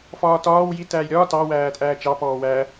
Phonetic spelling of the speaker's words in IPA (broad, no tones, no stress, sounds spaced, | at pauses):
f ɒː t ɒː w j i t æː j ɾʲ ɒː t ɑ w æː tʼ æː t͡ʃ ɑ p ɔː w æ